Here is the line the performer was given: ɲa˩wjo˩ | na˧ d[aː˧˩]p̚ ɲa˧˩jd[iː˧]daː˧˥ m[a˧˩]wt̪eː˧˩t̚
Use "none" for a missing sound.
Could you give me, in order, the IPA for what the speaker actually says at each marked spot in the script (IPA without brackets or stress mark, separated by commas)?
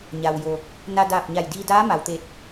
aː˧˩, iː˧, a˩